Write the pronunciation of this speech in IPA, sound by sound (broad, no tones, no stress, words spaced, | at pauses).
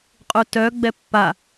qʼutœ ɡ͡bɛpːa